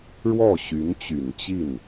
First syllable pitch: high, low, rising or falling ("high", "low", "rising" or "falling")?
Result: falling